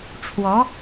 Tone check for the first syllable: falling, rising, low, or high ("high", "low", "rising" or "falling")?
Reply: rising